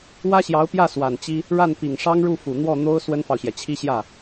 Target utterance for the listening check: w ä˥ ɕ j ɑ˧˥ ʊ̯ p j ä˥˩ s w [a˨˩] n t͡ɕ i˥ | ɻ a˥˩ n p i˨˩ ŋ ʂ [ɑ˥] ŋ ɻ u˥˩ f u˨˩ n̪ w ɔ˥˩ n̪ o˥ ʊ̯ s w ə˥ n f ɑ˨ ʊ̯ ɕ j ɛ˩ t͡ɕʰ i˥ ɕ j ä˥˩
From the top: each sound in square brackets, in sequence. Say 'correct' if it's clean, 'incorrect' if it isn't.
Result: correct, correct

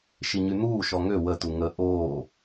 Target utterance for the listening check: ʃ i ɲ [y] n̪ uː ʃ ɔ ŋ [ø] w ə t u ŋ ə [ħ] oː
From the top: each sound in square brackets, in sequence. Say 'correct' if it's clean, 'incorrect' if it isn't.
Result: correct, correct, incorrect

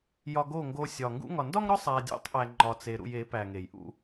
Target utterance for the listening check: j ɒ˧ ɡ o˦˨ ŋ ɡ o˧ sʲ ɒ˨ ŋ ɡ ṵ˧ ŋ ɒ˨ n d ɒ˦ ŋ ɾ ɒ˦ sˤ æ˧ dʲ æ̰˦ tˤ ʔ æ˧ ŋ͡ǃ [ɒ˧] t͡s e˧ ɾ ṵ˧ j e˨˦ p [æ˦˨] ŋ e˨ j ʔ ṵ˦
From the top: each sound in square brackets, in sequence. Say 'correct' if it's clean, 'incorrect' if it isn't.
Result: correct, incorrect

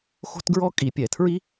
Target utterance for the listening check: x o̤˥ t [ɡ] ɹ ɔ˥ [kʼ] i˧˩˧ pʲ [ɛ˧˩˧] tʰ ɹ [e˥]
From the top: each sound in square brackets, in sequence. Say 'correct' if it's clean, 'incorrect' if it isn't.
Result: correct, correct, correct, incorrect

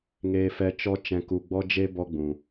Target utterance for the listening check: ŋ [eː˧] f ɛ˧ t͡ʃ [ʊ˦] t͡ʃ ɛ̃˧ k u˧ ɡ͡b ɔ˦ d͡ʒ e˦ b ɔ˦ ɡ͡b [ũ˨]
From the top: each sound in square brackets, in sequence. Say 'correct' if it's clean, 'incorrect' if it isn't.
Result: correct, incorrect, correct

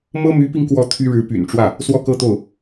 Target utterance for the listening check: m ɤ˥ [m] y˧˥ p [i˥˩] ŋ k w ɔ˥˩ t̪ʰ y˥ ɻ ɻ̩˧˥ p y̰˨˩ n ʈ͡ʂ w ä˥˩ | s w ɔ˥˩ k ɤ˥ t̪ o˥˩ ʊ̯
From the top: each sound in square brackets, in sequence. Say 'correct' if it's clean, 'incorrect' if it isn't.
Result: correct, incorrect

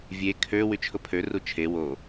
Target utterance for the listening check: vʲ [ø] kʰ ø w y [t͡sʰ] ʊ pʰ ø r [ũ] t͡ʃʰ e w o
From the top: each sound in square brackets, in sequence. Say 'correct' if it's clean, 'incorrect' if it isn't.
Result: incorrect, incorrect, incorrect

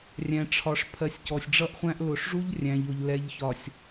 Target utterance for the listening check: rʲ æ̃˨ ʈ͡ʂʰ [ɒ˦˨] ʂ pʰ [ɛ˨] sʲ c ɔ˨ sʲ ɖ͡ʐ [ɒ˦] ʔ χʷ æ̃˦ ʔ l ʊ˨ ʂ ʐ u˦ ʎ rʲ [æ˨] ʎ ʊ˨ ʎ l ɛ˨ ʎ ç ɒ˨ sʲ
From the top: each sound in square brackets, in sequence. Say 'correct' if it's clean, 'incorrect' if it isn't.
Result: incorrect, incorrect, incorrect, incorrect

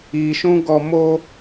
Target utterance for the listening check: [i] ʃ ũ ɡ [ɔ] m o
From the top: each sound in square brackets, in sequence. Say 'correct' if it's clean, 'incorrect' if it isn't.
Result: correct, correct

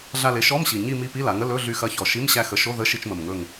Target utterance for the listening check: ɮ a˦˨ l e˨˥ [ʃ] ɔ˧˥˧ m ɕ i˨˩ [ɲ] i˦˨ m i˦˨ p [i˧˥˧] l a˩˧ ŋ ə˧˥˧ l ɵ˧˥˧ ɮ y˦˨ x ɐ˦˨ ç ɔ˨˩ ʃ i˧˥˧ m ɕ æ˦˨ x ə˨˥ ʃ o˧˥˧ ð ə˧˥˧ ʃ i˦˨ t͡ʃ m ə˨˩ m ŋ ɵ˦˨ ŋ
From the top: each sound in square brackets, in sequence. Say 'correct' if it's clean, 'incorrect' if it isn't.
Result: correct, correct, correct

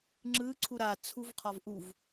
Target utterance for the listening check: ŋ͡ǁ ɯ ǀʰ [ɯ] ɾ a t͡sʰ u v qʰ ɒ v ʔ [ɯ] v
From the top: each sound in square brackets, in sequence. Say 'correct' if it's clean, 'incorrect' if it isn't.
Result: incorrect, incorrect

